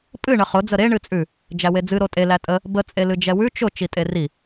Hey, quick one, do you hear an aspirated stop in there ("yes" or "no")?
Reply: no